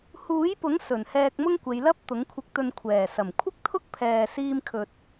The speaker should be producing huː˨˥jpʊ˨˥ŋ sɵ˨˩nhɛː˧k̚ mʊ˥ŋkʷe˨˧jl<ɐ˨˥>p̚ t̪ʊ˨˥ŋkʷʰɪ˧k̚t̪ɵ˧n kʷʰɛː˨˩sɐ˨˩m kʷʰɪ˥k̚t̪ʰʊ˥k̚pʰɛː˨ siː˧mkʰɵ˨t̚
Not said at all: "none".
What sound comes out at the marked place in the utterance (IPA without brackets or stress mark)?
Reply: ɐ˥